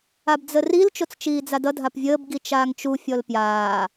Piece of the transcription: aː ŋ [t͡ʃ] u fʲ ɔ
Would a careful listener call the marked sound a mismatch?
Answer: no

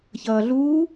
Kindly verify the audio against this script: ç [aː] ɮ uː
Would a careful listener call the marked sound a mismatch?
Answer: yes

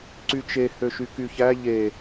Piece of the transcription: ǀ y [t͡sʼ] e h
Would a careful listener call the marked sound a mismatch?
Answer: yes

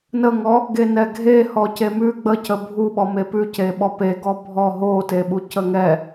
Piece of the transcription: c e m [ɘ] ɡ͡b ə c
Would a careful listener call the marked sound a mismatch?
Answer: yes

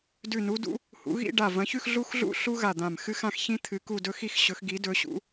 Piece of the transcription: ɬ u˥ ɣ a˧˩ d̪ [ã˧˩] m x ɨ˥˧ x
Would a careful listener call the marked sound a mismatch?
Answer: no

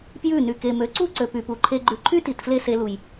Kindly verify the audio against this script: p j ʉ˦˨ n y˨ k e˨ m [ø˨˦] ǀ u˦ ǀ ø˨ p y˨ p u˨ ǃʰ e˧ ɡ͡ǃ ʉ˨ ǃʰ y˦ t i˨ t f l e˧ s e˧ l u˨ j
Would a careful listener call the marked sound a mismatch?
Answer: no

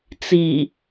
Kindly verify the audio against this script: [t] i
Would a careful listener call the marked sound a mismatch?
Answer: yes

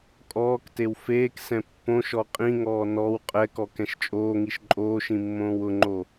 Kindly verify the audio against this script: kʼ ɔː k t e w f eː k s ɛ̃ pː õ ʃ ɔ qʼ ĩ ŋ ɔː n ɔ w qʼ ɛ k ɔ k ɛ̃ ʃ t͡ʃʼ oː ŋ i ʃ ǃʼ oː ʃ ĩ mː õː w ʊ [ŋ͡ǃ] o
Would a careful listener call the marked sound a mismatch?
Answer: no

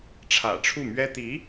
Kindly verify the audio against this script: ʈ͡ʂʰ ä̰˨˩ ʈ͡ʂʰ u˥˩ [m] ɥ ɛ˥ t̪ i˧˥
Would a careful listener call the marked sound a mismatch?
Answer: no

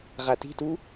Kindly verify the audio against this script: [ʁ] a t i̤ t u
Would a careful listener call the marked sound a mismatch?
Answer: no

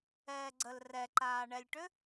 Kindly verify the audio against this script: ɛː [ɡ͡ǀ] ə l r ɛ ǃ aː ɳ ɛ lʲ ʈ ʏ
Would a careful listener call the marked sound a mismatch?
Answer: no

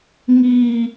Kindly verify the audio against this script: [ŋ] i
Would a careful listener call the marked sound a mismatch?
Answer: no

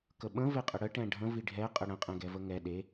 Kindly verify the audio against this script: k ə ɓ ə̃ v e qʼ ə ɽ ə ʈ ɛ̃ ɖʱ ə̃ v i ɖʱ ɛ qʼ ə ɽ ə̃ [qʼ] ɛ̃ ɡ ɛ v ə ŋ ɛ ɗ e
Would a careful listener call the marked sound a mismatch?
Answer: no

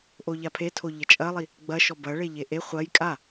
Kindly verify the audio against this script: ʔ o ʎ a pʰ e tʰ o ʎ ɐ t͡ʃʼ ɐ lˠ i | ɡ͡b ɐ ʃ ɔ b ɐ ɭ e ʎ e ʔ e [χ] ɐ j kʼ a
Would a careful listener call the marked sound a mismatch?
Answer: yes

